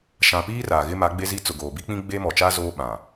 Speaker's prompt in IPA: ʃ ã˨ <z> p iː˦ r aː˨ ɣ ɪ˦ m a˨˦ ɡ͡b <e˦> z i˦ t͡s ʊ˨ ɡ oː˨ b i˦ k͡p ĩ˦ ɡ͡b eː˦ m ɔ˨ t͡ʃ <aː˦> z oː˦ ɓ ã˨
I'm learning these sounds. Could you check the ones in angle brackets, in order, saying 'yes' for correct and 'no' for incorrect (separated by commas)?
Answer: no, yes, yes